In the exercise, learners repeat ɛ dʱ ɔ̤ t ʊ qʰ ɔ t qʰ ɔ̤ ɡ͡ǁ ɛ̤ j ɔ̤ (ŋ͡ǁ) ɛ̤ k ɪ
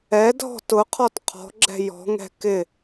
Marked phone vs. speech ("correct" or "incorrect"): incorrect